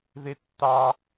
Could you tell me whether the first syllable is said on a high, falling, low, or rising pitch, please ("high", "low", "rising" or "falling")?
high